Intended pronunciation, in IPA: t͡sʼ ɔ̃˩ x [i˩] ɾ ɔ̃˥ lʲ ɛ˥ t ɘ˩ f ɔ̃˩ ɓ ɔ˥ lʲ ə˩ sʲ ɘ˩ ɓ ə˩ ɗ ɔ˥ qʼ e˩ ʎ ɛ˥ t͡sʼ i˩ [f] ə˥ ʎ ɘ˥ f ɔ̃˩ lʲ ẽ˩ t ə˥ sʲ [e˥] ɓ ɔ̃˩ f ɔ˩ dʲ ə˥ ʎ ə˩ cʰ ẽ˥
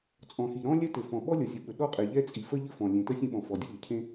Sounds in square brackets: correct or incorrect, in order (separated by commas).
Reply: correct, correct, incorrect